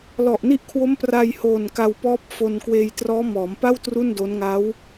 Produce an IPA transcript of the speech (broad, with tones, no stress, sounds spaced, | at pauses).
l ɔ˨˩ ʔ n i˥˩ ʔ kʰ w o˦˥ m p r a˧ j h oː˨˩ n k a˧ w p ɔː˦˥ p̚ f o˧ n k w eː˧ j t r ɔː˦˥ m ɔː˩˦ m p a˥˩ w t r u˥˩ n d o˦˥ n ŋ a˦˥ w